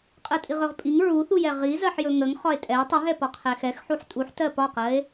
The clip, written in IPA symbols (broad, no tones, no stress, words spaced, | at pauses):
qʼɜtʼiʁɵʁpʼiŋ ɹuθujɛ ʁizɜħjɵ ŋəŋχɒe̯ tʼɛo̯ tˤəɦɛ pɒqʰɛxɛxħuħ tʼuħtɜ pɒqɜe̯